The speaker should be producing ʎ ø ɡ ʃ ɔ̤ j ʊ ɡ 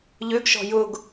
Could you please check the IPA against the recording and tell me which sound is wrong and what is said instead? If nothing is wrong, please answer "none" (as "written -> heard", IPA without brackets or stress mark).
none